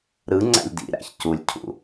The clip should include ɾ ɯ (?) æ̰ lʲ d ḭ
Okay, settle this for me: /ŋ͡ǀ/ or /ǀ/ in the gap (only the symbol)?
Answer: ŋ͡ǀ